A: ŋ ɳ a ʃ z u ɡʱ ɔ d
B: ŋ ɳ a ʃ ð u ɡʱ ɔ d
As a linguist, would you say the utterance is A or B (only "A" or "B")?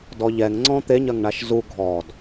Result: A